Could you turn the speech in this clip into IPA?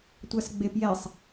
tʷ a s ɡ͡b e p j ɛ sˤ

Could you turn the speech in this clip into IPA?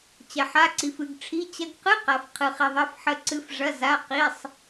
t͡ɕ ɐ˧ ħ a˧˥˧ ǀ i˧ f ɨ˧ ɡ ʈ͡ʂʰ i˧˥˧ t͡ɕ ɐ˧ ɡ q ɨ˧˥˧ q a˧ f qʰ ɨ˧ χ i˧ ðˤ ɐ˧˥˧ f ħ ə˧ ǀ ɨ˧ f ʐ ɐ˧˥˧ z a˧˥˧ q i˧˥˧ sˤ

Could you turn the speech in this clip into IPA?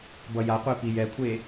b ʌ j a qʷ e p i j ɛ kʷʰ e

